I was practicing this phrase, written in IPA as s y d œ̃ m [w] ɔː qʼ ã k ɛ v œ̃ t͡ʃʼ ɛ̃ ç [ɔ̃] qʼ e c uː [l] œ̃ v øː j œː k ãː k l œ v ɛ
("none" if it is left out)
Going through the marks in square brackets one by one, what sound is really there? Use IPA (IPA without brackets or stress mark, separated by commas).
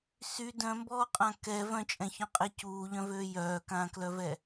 b, ɔ̃, ʎ